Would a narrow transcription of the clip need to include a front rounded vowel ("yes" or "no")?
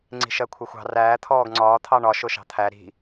no